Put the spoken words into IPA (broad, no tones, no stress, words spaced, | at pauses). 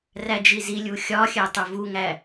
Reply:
ræd͡ʒizilʲu xʲɒ xʲætˤuvuŋæ